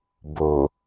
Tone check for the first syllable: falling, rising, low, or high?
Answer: low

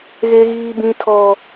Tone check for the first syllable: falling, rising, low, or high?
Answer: high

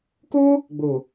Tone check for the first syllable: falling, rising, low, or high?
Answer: high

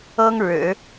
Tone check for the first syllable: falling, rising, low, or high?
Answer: high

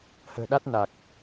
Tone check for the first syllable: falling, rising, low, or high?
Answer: low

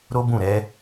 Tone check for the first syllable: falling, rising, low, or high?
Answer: high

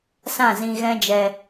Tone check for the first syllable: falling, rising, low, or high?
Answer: falling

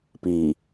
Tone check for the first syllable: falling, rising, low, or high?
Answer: low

